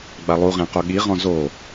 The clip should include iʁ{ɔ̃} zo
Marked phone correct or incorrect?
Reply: correct